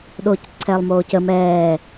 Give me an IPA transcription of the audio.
ɗ oː c ǀʰ ɛː lˠ m oː c ə m ɛː

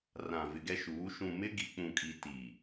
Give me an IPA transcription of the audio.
r ã˨ v ɪ˨ ɡ ɛ˦ ʃ uː˨˦ ʃ ũ˨ m ɪ˦ ɡ i˨ k͡p ũ˨ kʼ i˨ t i˨

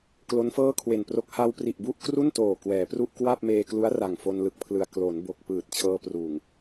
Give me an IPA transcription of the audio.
k l o˦˥ n f ɤː˥˩ kʰ w e˨˩ n p r o˦˥ k̚ h a˧ w p r i˨˩ ʔ b u˥˩ ʔ k r u˥˩ n t oː˨˩ k w ɛː˩˦ p r u˥˩ ʔ k w a˥˩ p̚ m eː˧ k l u˦˥ a̯ r a˨˩ ŋ f o˧ n l ɯ˨˩ k̚ pʰ l ɯ˨˩ a̯ k l o˩˦ n b o˨˩ k̚ p ɯː˨˩ t̚ t͡ɕʰ ɤː˧ p r uː˨˩ ŋ

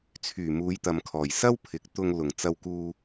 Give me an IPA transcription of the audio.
t͡sʰ yː˨˩ m uː˨˧ j t̪ ɐ˨ m kʰ ɔː˨˩ j s ɐ˥ w pʰ ɪ˨˥ k̚ t̪ ʊ˧ ŋ l ʊ˨˩ ŋ t͡s ɐ˧ w k uː˧

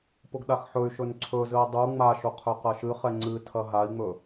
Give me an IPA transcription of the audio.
p ʊ ɡ ɗ a x ħ ɵ y̯ ʃ ɵ n ǀʰ ɵ z ɨ i̯ dˤ u ŋ͡m a ʃ ʊ qʰ ɵ q ɐ ʃ ɨ χ ɛ ŋ͡ǀ ɨ tʰ ɐ ɦ a i̯ ŋ͡m ɵ

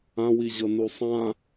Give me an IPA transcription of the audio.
ã w i ʑ ɤ n u sˤ ã

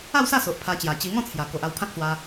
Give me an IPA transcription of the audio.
a˥˧ w s a˥˧ s o˨ ʔ pʰ a˧ t͡ɕ j a˨˩ t͡ɕ i˧ ŋ ɔ̃˥˧ t͡sʰ j a˨˩ k o˨ ʔ a˧ w pʰ ã˦ k̚ s w a˧

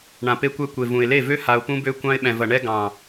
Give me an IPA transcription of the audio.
ɳ ã˨ p e˧ kʷ ɛ˧ kʷ e˨ v ũ˨ ɪ̯ l e˦˨ v ø˦ h a˧ ʊ̯ p ũ˦ b ø˦ kʷ ɑ̃˧ ɪ̯ ɓ ɛ̃˨ v ɐ˨ ɳ ɛ˧ ɡ ɑ̃˨

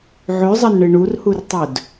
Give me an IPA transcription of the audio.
ʕ ʉ zˤ ɐ n ɳ ɨ ɳ u r h u r tˤ ɵ d

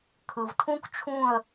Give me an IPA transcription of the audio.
kʰ ɯ˩ v tʰ ũ˦˥ k t͡ʃʰ ũ˦˨ ə̯

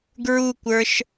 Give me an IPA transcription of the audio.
ɡ ɹ u kʷ ə˞ ʃ

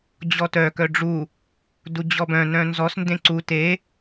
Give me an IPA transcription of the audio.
d͡ʑ ɔ t œ k œ ɖ͡ʐ u | d u d͡ʑ ɔ b œ̃ n œ̃ n z ɔ s n d ẽ ǀ u t e

